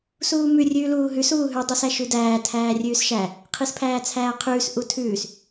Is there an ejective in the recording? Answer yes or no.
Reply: no